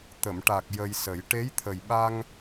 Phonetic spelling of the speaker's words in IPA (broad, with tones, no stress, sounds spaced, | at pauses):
t̪ ə˨˩˨ m ʈ a˨˩ k̚ j ə˧ j s ə˨˩˦ j ʈ e˧˥ j t̪ʰ ə˨˩ j ɓ a˧ ŋ